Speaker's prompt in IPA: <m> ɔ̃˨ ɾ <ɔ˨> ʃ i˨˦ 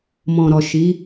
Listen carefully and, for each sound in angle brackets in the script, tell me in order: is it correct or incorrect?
correct, correct

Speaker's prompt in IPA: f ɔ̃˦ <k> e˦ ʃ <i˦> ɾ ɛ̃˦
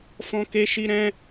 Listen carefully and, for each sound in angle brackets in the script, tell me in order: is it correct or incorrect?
correct, correct

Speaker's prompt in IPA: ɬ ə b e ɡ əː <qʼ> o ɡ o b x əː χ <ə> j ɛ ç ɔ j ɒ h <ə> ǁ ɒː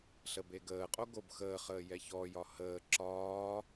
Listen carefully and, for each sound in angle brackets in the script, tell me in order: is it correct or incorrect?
correct, incorrect: əː, incorrect: əː

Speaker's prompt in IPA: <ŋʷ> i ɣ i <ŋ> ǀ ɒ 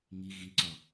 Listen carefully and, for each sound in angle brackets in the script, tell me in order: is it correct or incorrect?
incorrect: ŋ, incorrect: none

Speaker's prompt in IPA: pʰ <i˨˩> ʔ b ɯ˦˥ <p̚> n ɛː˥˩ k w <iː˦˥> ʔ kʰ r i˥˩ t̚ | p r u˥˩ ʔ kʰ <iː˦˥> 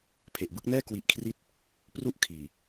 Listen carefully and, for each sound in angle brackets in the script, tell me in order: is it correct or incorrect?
incorrect: e˨˩, incorrect: k̚, incorrect: i˦˥, incorrect: iː˨˩

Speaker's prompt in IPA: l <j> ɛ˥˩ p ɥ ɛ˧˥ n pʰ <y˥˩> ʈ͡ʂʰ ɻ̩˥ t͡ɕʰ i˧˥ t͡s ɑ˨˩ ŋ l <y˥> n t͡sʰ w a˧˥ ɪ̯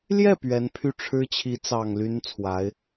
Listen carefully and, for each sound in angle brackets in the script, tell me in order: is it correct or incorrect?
correct, correct, correct

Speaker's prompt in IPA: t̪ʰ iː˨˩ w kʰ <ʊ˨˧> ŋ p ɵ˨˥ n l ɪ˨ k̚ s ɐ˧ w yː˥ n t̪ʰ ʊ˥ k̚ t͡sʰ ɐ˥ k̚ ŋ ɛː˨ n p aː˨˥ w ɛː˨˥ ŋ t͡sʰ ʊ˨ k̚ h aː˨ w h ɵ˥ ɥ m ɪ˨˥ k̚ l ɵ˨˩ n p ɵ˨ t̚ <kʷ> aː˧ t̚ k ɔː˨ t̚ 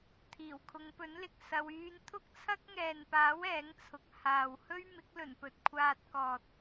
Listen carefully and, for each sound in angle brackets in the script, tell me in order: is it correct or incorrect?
correct, incorrect: kʷʰ

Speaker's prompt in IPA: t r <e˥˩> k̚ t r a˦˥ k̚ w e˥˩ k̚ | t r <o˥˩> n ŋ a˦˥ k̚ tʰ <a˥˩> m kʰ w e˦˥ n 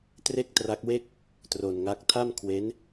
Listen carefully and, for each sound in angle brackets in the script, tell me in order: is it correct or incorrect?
correct, incorrect: o˧, correct

